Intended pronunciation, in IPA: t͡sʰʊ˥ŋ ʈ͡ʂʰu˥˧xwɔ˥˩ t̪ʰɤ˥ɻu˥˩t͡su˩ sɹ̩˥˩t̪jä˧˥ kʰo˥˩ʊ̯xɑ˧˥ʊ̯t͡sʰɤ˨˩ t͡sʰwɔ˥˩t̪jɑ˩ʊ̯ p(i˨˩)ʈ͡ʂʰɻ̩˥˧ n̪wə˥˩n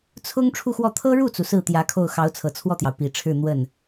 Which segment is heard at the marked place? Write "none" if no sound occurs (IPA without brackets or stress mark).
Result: i˨˩